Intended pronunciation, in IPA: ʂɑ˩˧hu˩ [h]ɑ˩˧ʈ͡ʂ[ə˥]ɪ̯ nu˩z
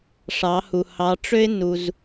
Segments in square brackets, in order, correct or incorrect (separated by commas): correct, incorrect